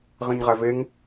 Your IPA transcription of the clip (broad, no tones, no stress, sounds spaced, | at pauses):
ʁ ĩ ɲ ʁ æ v e ŋ